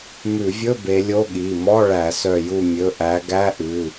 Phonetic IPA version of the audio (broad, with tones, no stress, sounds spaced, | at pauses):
m ʉ˧˩˧ vʲ ɵ˧˥˧ b e˨˦ lʲ o˧˥˧ ɠ i˩˧˩ m ɔ˧˥˧ ɭ æ˧˩˧ s œ˧˩ j u˧˩ mʲ ɵ˩˧˩ ʔ æ˨˦ ɡ æ˧˥˧ ʔ ʉ˩˧˩